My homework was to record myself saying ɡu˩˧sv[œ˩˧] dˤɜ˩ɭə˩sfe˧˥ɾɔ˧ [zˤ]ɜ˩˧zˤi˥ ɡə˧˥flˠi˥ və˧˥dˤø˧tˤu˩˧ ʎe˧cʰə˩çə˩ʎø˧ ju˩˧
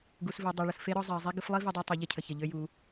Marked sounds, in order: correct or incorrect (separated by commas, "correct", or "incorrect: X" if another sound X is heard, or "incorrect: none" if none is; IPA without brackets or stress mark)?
incorrect: ø˩˧, correct